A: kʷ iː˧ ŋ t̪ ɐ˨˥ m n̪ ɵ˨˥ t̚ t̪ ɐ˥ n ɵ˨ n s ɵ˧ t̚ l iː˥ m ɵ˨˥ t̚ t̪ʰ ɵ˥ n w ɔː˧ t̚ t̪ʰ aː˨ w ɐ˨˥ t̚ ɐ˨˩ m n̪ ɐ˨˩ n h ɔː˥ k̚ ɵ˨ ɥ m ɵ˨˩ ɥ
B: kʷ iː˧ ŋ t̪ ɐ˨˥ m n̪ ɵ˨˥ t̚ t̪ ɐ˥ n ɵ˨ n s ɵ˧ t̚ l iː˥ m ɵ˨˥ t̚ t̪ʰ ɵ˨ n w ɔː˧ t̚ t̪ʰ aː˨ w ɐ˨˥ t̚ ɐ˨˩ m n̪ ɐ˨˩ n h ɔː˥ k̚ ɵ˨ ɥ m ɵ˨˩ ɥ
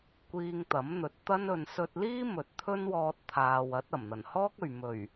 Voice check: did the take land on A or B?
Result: A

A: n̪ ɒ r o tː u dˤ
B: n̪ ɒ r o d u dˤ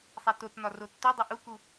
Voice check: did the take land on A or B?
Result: A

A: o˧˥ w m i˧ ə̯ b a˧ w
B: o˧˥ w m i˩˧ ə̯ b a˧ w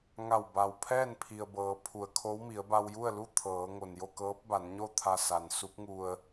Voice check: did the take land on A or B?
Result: B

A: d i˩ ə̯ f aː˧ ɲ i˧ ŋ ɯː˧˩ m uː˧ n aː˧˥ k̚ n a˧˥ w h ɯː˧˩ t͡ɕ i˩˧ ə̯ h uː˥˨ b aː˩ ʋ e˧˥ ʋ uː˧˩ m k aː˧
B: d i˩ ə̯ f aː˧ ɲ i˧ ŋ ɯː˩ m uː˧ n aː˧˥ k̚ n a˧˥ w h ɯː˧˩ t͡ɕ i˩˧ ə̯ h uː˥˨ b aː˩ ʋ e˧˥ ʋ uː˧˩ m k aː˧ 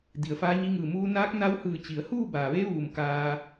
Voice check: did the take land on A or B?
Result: A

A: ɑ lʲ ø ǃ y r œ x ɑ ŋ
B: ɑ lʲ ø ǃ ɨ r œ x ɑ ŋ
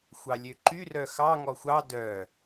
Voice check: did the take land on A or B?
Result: A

